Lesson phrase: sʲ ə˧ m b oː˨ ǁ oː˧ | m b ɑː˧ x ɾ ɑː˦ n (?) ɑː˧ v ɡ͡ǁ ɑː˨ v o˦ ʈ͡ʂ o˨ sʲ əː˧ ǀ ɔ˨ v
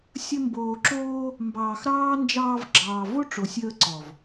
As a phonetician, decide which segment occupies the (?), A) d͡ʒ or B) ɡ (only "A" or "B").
A